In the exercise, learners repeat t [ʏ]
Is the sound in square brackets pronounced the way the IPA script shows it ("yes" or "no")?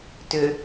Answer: yes